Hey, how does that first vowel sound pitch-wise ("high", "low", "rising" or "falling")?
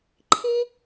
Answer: high